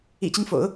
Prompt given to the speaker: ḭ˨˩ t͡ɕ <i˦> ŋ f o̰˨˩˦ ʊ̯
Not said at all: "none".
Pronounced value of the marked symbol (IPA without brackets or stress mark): i˦